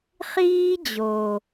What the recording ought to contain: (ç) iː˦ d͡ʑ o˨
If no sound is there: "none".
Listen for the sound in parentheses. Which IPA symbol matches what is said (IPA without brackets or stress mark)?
χ